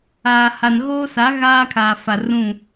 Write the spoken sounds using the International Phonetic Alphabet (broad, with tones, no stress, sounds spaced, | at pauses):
aː˨ h a˨ n ɣ oː˦ s a˨˦ ɣ aː˦ kʰ a˨ f a˨ r ũ˦˨